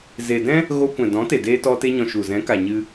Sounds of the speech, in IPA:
ze˨dɛ̃˦ | ɣo˧ kʷɛ̃˨dɔ̃˨˦te˨deː˧ tɔ˧te˧ɲɔ̃˨ ʃu˨ zɛ̃˨˦ka˨ɲɨ˧

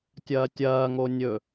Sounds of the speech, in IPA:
tʲɐːtʲɐː ŋonʲɵ

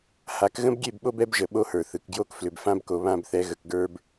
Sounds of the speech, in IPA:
ha˨˦kɣə̃˦bɡʲe˦˨bɓo˦b ɛ˦bʒə˨ ɓo˦hə˞˨θɯ˨k ɡjo˦k flʏ˨b fã˦bko˨ βã˦˨bθɛ˨˦ɣə˨kɡə˞˦b

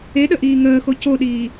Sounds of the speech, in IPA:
eɗə ʔiːŋəːxo coɗiː

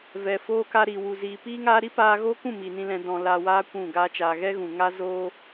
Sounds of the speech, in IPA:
vɛ˨foː˦ ka˧ɾi˨wu˨ ziː˨piː˦ŋaː˦ ɾi˦paː˧ɣoː˦kũ˦˨ mi˨nĩ˧ lɛ̃˦dɔ̃˧ laː˧waː˦ kʷũ˦˨ɡa˦t͡ʃaː˧ ɣɛ˦ɣũ˨ŋa˦ zoː˦

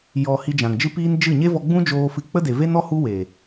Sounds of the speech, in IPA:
jɔ˨ hi˧d͡ʒã˨ŋd͡ʒɨ˦piː˦n d͡ʒɨ˦˨ ɲe˦vɔ˧ɡ͡bũ˦d͡ʒoː˧ fɨ˧ k͡pə˦de˨ ve˦nɔ˦ hu˦we˨

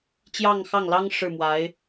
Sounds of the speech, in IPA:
t͡ɕjɑ˥˧ŋxɑ˥˩ŋlɑ˥ŋ ʂɻ̩˥˩mwa˧˥ɪ̯

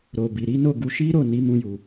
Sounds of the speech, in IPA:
ɾo˨bi˨ɾi˨˦no˦˨ ɡu˧ʃi˦ɾo˦˨ ni˨˦mũ˧ju˨

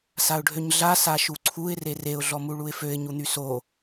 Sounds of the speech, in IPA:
saʊ̯ɖʱøɲɮa saʃuǀʰuɪ̯ rereʊ̯ ɮɔmuɭuɪ̯føɪ̯ ɲun̪yso

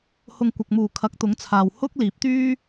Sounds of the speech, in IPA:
hʊ˧ŋ kʷɐ˨k̚muː˨˩ kʰɐ˨˥k̚t̪ʊ˨˥ŋt͡sʰaː˨w hʊ˥k̚ liː˨˥p̚ t̪yː˥

